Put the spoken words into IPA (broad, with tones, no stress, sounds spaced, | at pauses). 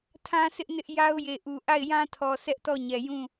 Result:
tʰ ã˦ s ɪ˦ ʔ n ɪ˦ ʔ j a˦ ʊ̯ j e˨ ʔ u˨ ʔ a˦˨ ɪ̯ j ã˦ tʰ ɔ˨ s ɛ˦ ʔ t ɔ˦˨ ɲ ɛ˨ j ũ˦˨